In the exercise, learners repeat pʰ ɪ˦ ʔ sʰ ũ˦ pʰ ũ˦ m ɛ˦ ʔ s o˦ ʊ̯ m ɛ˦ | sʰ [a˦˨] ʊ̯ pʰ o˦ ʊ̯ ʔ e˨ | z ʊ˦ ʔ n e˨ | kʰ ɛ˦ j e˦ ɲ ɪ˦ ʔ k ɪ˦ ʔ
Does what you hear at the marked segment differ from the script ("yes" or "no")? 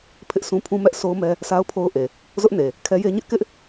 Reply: yes